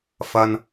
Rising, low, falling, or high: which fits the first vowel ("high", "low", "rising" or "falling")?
low